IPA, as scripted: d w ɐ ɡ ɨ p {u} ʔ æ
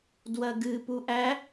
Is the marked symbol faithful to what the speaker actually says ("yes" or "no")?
yes